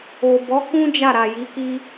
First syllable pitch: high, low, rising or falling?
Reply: low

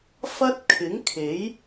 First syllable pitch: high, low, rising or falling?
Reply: high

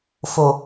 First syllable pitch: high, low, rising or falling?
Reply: low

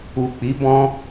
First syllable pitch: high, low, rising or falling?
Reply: low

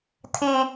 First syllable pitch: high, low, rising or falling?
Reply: high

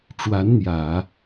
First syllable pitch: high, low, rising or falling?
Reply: rising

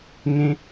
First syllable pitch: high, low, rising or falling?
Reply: high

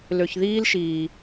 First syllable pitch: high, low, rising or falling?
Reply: low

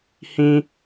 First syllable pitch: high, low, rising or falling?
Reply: high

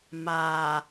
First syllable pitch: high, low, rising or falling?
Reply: low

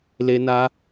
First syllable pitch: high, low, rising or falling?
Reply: high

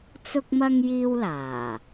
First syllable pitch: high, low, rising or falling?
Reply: high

